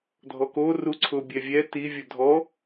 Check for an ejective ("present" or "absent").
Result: absent